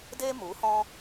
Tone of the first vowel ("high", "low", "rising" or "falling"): high